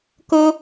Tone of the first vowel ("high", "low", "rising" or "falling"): high